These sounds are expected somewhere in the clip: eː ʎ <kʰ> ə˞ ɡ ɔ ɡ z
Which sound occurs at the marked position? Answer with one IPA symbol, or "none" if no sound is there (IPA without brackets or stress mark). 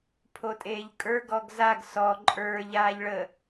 kʼ